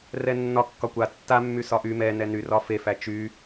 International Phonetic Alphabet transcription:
r ɛ nː ɒ kː ɒ kʷ a tː a mː y s ɒ ʔ y m ɛ n ɛ n y r ɒ f e f æ t͡ʃ y

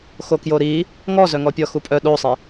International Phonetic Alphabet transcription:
x o k j o ɾ i | ŋ ɔ z œ ŋ ɔ pʲ ɔ x u pʼ œ ɗ o sˤ i

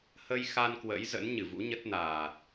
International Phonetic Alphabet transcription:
h ə˧ j x a˧ n k w ə̰˧˥ j z ə̰˧˥ n ɲ ɨ˧˩ v ṵ˧˥ ɲ ə˦˥ t̚ n aː˨˩ t̚

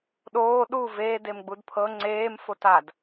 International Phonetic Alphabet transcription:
ɗ oː ɗ u v eː d e m ɡ͡b u d pʰ ɤ ŋ͡ǀ eː m f o t a d

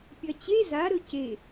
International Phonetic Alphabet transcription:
pʲ ɐ t͡ɕ e z a ɾ ɵ c e

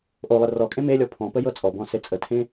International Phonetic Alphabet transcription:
ʔ o lˠ ə r ɔ kʼ ẽ m e lʲ ɔ pʰ ɔ̃ p ə j ɤ t͡sʼ ɔ b ɔ̃ s e t͡sʼ ə tʰ ẽ

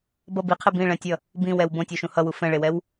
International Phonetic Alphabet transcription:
b ʌ b i qʰ e b ĩ ɭ ɛ̃ tʲ ʌ | b ĩ w ɛ w b õ tʲ o ʃ ũ h ʌ w u f ɛ̃ ɭ e w ɛ w

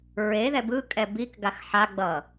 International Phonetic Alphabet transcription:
ɹ e ð ɛ b ɯ kʼ ɛ b i k ɡ a x ħ a ɡ͡b ʌ

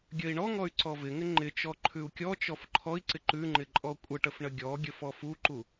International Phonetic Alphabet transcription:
ɡʲ ə i̯ ɳ ɔ ŋ ɔ y̯ ǀ ɔ v ɪ ŋ ɪ ŋ͡ǃ ɪ t͡ʃ ɔ ǃʰ ʉ u̯ kʲ ɔ t͡ʃ ɔ f ǃʰ ɔ i̯ ǀ ɪ ǃ ʉ ŋ͡ǃ ɪ ǃʼ ɔ kʷʼ ə ʈ ə f ɳ ə ɡʲ ɔ ɡʲ ə f ɔ f u ǃ u

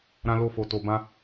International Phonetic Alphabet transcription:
ɾ ã˧ l o˧ f o˨ t o˨ b ã˧

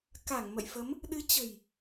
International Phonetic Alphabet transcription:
k a˧˩ ŋ m ə̰˧˨ j f ə˨˦ m | ɗ ɨ˨˦ t͡ɕ ə̤˨˩ j

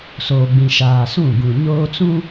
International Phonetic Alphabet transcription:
s oː˨ ɡ͡b ĩ˨ ʃ aː˨ s ũ˦˨ ɡ ũ˨ ɲ oː˦ t͡s ũ˦

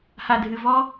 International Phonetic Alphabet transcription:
h a˨ dʱ ɨ˨ v ɔ˦

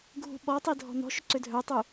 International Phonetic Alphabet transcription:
ɡʱ ṳ ɓ ɔ tˤ i dʱ ɔ̤ n ɔ̤ ʃ ʏ ǀ ʏ dʱ œ tˤ u

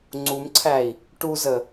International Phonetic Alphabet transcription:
ŋ͡ǀ u m ǀʰ æ i̯ | ʈ u z ə

